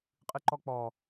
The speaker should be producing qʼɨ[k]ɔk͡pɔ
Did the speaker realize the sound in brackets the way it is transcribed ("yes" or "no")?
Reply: no